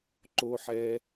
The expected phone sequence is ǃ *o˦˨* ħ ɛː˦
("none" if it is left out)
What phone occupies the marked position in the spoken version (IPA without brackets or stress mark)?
o˦